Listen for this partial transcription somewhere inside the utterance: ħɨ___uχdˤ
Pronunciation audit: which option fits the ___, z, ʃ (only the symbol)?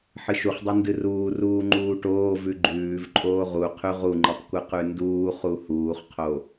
ʃ